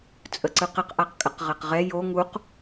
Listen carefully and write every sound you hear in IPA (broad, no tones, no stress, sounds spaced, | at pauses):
t͡sʼ ə ǀ ɯ q ə q ʔ a q kʼ ə q ʁ ɛ q ʁ ɛ j o ŋ u q